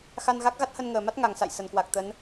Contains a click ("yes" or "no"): no